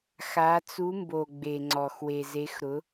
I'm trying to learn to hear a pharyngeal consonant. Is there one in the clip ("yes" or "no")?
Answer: no